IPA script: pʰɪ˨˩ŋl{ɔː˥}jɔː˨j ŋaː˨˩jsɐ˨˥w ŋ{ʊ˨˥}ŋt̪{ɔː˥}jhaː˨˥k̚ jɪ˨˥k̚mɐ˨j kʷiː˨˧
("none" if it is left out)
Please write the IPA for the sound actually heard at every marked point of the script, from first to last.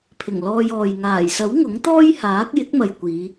ɔː˧, ʊ˨˥, ɔː˥

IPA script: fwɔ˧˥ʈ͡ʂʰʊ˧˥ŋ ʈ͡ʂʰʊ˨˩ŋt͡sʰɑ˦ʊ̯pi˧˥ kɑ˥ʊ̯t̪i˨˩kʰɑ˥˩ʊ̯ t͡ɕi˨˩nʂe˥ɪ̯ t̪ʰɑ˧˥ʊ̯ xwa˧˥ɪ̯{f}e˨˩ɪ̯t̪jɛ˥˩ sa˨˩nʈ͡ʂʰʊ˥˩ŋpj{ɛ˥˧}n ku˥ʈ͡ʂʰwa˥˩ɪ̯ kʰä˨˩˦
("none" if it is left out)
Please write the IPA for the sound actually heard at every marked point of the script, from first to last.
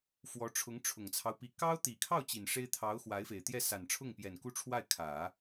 f, ɛ˨˩

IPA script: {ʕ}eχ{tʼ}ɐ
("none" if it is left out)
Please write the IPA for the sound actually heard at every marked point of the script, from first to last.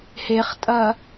h, tʼ

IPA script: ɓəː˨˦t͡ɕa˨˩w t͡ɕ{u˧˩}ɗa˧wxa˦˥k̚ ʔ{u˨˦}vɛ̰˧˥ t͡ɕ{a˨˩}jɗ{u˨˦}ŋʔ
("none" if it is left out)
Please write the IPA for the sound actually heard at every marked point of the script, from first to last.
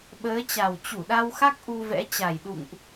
u˧˩, u˧, a˨˩, ṵ˧˨

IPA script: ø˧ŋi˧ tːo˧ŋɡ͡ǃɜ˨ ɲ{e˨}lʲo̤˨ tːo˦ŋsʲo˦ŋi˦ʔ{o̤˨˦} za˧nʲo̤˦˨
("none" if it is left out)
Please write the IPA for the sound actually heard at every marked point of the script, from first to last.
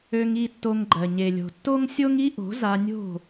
e˨, o̤˨˦

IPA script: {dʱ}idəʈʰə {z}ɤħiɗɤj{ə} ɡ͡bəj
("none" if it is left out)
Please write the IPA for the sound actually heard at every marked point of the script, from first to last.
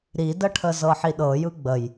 ɾ, z, ɯ

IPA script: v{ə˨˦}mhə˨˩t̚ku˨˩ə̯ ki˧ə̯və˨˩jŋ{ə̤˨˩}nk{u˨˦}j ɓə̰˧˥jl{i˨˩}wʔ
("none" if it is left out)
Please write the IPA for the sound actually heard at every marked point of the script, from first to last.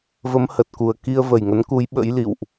ə˨˦, ə˨˦, u˨˦, ḭ˧˨

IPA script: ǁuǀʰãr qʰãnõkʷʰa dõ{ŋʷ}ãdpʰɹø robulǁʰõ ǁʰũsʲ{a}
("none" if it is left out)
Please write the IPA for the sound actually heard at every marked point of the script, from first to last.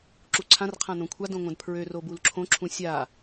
ŋʷ, a

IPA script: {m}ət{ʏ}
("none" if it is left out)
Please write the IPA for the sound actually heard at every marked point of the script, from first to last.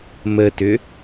m, ʏ

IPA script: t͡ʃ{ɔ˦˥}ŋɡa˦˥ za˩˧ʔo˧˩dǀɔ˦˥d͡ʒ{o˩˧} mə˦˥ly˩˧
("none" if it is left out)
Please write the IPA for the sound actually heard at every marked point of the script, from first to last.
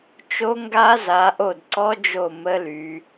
o˦˥, o˧˩

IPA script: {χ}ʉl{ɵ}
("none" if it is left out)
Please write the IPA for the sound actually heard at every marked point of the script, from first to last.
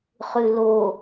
χ, o

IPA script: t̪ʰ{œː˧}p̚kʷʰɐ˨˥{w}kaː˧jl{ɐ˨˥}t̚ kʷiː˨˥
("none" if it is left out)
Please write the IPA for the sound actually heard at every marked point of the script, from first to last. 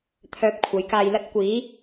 œː˧, j, ɐ˥

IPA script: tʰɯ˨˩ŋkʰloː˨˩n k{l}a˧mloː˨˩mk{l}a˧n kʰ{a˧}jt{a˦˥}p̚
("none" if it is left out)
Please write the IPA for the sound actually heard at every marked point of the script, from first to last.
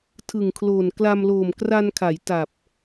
l, r, a˩˦, a˨˩

